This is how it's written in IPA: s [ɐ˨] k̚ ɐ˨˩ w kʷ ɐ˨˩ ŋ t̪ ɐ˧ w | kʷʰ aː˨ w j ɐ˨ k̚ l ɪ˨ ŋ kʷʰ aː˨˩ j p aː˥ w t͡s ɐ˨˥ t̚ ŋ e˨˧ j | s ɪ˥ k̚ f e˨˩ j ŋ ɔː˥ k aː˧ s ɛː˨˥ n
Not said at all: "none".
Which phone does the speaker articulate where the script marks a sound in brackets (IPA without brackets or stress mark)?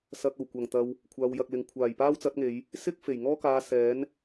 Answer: ɐ˧